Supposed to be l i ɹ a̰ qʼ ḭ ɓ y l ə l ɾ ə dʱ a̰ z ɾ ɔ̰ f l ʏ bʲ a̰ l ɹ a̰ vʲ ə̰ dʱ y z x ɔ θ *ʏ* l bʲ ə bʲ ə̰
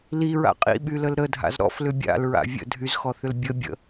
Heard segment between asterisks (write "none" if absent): ʏ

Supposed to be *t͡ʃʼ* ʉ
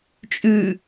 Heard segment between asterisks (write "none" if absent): t͡ʃʼ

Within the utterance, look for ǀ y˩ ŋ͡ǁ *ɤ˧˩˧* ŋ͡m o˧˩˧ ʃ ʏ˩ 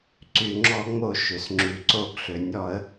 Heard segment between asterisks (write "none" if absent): ɔ˧˩˧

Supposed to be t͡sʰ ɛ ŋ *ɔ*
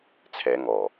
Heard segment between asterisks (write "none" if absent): ɔ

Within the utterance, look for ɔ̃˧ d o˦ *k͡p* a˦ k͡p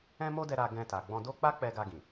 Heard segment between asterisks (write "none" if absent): k͡p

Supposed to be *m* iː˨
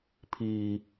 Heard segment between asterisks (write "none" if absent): pʰ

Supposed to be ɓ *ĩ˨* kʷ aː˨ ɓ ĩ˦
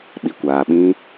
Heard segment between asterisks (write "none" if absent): i˨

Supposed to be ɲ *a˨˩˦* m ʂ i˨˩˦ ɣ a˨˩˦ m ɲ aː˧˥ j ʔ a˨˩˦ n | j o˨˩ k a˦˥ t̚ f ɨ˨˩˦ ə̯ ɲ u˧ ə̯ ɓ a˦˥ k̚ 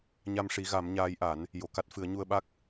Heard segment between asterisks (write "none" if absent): a˧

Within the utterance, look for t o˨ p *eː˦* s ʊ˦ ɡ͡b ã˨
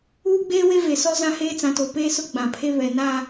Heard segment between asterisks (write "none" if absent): eː˦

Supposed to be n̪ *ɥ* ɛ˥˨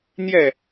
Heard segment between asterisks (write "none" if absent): j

